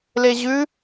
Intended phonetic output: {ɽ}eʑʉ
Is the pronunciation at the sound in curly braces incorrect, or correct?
incorrect